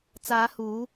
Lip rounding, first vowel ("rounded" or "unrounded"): unrounded